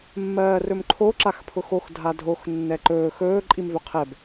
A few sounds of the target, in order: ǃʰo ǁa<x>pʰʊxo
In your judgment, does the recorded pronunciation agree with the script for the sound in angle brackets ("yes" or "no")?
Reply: yes